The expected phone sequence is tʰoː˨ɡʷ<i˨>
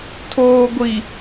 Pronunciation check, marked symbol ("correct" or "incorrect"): correct